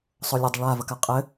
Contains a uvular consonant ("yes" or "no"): yes